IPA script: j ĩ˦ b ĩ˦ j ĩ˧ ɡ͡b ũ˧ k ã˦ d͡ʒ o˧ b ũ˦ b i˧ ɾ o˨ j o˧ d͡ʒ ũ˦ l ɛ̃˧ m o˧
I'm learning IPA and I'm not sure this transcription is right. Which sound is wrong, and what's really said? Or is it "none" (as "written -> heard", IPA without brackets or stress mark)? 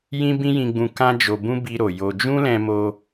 none